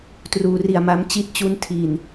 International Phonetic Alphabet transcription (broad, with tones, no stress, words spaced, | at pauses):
truː˩˦ri˨˩a̯ ma˧m t͡ɕi˦˥t̚t͡ɕu˧ntʰi˨˩n